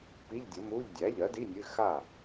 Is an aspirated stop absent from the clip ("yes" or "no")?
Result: yes